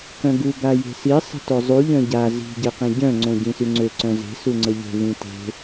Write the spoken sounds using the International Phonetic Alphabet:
kœ̃ɡu ɡaje̤si sˤə̤tozˤu ʎœ̃ɟa zi̤ ɟeqĩɟœ̃ ŋ͡ǀõɟĩsyŋ͡ǀø ǀœ̃ze̤ suŋ͡ǀəʎe̤ βĩte̤

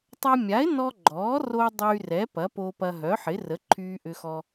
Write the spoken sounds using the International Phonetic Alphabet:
tˤɐ˧mʲa˩˥ɪ̯nɔ˧ ɡ͡ǃɔː˩˥ ro˧ dˤyː˧rɛ˩˥ pɐ˩˥po˧pɐ˧ ɦœ˩˥ħɪ˩˥ rə˩˥ǃʰyː˧ʔʏ˧xɔ˧

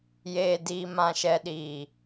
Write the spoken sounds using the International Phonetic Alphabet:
jeː˨diː˨ mã˨ʃɛ˨ɗiː˨

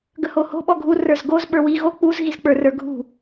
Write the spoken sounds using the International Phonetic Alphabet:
ɡəhoho̤ ɓɔɡʱu rə˞zɡoz ɓə˞wi ɣo k͡puz ɣizk͡pə˞rə˞ɡʱṳ

